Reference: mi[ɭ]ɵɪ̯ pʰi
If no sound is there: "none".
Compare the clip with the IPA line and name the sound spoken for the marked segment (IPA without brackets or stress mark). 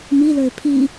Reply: l